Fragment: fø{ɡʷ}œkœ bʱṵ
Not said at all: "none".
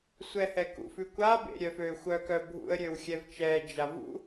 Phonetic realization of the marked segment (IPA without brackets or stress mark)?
xʷ